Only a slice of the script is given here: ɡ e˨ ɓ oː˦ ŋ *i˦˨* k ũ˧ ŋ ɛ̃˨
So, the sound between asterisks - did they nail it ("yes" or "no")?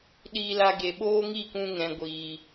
yes